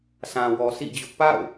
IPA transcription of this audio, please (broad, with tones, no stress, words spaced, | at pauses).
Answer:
sʰã˨wɔ˨sḭ˦˨d͡ʑʊ˦ʔ pa̰˦˨ʊ̯